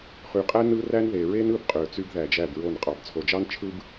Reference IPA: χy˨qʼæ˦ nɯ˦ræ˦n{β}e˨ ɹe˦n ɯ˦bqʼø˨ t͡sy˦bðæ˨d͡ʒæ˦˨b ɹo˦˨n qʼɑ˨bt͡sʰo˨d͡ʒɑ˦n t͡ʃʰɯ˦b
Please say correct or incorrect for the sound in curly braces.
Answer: incorrect